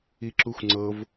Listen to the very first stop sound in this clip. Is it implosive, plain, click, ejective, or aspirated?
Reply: click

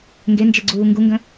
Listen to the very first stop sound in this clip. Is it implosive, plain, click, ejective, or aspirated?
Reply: plain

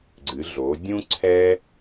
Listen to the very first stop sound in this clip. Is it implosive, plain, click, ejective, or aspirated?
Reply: click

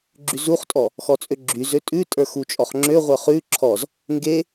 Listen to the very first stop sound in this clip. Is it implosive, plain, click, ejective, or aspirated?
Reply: click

